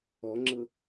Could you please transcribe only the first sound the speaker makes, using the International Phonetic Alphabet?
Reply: ɔ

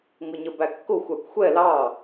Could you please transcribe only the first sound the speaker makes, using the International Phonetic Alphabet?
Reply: ŋ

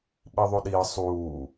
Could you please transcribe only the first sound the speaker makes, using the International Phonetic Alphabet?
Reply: ɓ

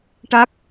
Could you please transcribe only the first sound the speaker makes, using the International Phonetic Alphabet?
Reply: ʈ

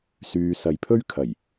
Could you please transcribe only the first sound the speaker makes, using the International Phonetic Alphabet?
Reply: s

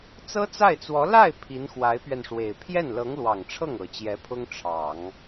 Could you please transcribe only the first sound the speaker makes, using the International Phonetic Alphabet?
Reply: t͡s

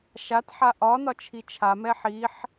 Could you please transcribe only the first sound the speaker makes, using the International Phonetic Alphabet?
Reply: ʃ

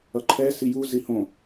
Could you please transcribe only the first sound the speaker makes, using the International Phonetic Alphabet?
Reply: ʌ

